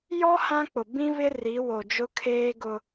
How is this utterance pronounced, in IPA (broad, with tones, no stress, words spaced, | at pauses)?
jɔ˦ hã˦k͡pʊ˨ bĩ˦βɪ˦ ri˨˦wo˨d͡ʒʊ˦ kʰeː˦ɡʊ˦